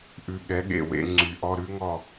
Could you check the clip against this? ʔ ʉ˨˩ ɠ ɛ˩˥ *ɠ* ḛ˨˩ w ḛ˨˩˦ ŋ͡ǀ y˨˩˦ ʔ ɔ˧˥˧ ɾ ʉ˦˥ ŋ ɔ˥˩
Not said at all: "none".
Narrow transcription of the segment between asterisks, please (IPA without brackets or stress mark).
ɠ